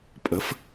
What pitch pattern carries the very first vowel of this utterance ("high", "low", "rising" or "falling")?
rising